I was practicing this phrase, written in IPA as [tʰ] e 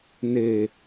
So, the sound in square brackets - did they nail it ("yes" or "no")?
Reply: no